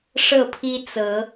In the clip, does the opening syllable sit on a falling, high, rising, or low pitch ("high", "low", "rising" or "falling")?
falling